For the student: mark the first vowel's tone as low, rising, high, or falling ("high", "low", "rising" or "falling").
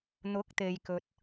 rising